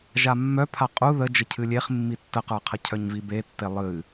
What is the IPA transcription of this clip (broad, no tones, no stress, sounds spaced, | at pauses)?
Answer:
ʒ a mː œ pʰ a qʼ u ð ə d͡ʒ ə cʰ ɨ lʲ e χ mː i tː ə q ə˞ qʰ ə cʰ œ ɲ v i b e tː e lˠ ɨ